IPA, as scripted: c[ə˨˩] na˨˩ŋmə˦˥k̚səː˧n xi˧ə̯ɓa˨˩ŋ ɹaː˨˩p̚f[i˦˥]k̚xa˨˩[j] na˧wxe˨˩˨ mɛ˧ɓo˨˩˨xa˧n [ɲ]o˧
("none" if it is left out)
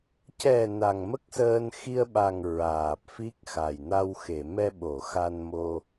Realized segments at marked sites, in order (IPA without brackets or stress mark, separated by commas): ɛ˨˩, i˦˥, j, m